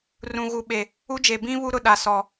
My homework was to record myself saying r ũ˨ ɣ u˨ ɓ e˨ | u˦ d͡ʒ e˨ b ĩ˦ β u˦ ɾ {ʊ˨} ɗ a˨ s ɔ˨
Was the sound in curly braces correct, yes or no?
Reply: yes